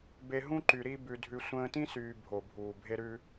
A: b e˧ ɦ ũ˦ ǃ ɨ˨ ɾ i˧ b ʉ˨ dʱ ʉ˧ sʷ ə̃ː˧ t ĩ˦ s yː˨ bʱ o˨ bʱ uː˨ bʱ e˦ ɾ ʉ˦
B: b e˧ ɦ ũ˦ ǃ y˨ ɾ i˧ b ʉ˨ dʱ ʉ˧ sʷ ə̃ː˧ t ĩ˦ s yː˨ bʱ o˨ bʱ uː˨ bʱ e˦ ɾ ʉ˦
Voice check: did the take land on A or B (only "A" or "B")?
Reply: B